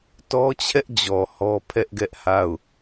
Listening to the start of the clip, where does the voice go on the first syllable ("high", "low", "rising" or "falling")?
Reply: high